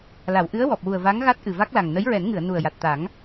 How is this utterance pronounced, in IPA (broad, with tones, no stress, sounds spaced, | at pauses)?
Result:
l a˨˩˨ w ʔ ɨ˧˥ ə̯ w ɔ˨˩ p̚ w u˨˩ ə̯ v a˧˥ ŋ ɣ a˦˥ t̚ ʔ ɨ˨˩ v a˦˥ k̚ l a˨˩ ŋ n ə˧˥ j ɹ ɛ˨˩˦ n ŋ ɨ˨˩˨ ə̯ n u˨˩ ə̯ j a˨˩ t̚ t̪ a˨˩˦ ŋ